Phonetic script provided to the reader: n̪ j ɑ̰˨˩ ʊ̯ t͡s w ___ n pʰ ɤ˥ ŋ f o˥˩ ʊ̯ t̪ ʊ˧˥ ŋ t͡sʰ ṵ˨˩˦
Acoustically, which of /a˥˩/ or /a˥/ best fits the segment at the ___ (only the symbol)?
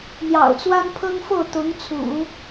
a˥